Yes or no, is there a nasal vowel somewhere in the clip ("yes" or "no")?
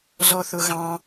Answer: yes